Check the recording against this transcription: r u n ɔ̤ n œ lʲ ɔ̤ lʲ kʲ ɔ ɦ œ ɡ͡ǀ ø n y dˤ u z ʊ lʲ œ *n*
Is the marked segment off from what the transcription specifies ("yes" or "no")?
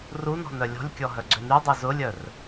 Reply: yes